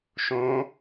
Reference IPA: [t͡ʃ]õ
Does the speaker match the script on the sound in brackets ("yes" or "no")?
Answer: no